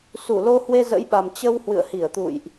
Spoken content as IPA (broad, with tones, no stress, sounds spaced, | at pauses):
s u˧˩ l o˧ h w e˧ z ə̰˧˥ j ɓ a˨˩ m t͡ɕ ə˧ w h w ɨ̰˧˨ ə̯ h i˧˩ ə̯ t̪ ṵ˧˨ j ʔ